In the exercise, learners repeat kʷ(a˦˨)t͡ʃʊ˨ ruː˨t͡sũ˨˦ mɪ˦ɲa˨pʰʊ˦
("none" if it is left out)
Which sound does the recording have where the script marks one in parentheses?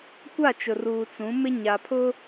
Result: a˦˨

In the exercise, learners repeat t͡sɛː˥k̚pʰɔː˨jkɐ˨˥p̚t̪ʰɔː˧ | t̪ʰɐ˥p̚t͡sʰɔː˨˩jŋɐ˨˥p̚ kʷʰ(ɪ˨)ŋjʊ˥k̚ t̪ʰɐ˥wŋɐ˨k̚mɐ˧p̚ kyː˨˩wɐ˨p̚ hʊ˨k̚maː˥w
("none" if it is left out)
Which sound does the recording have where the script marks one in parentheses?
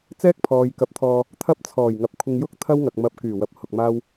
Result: ɪ˧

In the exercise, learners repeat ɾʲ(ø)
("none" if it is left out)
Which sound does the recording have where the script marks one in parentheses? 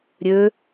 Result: ø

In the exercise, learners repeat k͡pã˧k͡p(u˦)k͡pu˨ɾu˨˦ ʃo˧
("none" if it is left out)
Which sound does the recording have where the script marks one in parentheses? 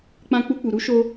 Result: u˧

